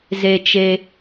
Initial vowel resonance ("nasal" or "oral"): oral